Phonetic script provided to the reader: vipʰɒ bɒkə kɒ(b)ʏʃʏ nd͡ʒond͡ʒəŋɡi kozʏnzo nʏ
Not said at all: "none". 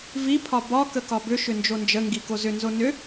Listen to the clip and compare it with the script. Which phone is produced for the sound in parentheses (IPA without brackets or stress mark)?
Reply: b